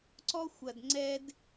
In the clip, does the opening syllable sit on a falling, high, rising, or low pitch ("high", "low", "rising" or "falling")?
high